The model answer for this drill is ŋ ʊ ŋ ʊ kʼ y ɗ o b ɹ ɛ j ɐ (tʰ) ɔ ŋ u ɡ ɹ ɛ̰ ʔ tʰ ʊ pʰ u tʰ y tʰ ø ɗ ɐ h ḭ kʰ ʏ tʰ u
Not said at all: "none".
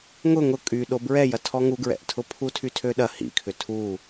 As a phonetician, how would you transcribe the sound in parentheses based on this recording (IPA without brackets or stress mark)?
tʰ